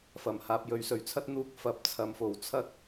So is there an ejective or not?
no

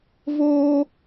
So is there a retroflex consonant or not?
no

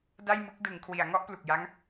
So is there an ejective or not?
no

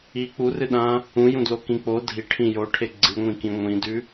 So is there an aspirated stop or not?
yes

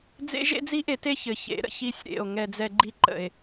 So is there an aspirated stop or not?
no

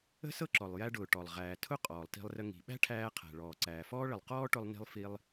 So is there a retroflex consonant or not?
yes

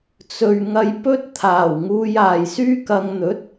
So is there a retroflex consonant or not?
no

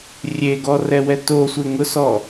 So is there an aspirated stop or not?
no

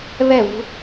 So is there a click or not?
no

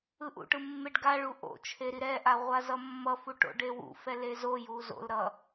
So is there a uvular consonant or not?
yes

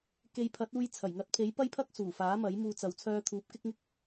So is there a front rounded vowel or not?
yes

